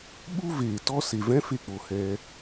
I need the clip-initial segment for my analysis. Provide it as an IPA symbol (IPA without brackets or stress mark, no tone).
ɓ